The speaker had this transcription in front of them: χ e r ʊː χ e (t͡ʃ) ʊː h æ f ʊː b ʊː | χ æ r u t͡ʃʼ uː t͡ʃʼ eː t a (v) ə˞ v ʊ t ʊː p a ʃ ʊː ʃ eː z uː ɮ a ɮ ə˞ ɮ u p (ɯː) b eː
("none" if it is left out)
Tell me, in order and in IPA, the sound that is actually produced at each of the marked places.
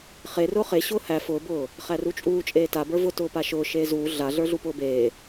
ɕ, b, ʊː

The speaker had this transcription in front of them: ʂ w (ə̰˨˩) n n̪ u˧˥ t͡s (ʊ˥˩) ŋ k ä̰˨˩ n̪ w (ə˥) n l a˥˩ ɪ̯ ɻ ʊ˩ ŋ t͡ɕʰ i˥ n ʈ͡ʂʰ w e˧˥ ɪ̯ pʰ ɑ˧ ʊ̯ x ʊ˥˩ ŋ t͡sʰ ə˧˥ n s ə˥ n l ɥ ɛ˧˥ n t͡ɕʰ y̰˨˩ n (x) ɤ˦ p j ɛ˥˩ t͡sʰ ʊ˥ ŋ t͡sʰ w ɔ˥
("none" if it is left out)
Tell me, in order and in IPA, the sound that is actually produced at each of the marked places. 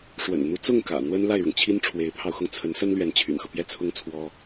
ə̰˨˩, ʊ˥˩, ə˥, x

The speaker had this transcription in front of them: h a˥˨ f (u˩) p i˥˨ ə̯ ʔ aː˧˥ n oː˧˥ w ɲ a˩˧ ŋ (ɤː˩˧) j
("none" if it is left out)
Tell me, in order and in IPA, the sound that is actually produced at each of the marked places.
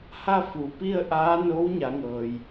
u˩, ɤː˩

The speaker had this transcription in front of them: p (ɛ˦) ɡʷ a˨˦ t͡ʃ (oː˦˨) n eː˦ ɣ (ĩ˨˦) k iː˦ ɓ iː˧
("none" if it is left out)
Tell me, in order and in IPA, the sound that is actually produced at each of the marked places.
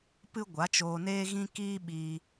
ɨ˦, oː˧, ĩ˦

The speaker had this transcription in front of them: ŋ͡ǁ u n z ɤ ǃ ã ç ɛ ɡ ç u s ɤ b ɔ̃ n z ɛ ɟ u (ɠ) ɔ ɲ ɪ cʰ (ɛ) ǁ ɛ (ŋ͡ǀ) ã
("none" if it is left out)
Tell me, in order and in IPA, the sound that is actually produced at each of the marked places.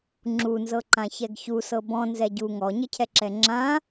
ŋ, ɛ, ŋ͡ǁ

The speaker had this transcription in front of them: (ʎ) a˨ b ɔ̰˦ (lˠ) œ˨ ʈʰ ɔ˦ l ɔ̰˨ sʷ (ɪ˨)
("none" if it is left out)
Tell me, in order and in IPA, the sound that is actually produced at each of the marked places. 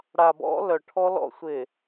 ɽ, l, ɪ˨

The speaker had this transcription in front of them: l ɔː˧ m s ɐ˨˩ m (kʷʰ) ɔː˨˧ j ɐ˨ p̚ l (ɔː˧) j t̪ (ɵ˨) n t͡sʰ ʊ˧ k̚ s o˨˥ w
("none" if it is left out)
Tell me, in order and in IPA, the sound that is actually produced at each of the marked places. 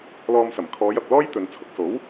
kʰ, ɔː˥, ɵ˨

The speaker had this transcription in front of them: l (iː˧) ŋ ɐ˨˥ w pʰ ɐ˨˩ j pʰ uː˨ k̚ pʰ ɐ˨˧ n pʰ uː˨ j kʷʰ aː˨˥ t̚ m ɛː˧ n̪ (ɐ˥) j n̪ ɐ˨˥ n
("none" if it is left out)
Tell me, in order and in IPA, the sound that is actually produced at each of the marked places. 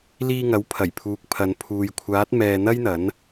iː˧, ɐ˥

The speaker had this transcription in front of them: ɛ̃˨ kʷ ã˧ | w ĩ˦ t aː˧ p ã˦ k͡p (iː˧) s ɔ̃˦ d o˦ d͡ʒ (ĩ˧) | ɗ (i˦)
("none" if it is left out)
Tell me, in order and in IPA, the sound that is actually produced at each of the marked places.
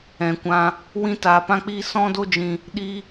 iː˦, ĩ˧, i˦

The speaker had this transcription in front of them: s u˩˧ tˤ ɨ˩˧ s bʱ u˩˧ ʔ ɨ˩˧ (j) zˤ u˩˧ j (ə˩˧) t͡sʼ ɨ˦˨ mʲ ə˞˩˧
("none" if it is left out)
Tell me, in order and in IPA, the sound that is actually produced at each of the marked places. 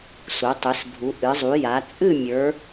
none, a˩˧

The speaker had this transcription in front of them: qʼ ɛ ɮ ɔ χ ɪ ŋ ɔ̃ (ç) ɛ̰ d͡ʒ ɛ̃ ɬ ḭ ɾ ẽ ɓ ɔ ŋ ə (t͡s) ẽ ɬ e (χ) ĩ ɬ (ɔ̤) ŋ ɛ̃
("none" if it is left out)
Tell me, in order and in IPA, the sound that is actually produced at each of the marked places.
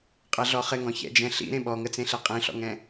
ç, t͡s, qʼ, ɔ̰

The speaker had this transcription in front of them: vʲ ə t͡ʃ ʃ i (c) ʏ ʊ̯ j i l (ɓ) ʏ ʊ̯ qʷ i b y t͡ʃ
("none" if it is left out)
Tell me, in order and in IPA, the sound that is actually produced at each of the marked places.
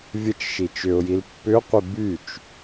t͡ʃ, pː

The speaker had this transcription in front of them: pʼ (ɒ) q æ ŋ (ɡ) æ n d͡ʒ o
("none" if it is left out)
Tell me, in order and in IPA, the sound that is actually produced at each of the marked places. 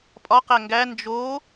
ɒ, ɡ

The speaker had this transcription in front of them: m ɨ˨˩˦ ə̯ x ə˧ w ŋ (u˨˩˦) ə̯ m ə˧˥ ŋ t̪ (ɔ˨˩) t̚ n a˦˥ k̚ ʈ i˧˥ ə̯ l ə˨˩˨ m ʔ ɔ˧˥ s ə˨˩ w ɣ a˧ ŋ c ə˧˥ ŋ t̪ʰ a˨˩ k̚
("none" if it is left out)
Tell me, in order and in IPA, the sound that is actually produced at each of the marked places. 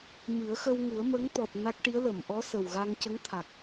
u˨˩˦, ɔ˨˩

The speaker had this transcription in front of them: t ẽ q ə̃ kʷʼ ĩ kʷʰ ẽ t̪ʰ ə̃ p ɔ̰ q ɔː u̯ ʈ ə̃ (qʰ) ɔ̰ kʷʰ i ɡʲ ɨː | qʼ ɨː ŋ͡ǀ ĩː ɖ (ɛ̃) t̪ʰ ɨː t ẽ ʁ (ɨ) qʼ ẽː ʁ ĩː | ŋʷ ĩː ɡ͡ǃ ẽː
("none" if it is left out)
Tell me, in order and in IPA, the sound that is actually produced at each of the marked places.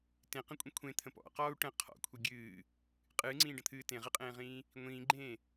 qʰ, ə̃, ɨ

